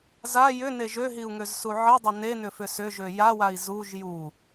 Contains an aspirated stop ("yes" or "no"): no